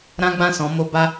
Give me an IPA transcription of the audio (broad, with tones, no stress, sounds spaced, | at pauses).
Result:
ɾ ã˦ ɡ͡b ã˦˨ s ɔ̃˨˦ m o˦ b a˦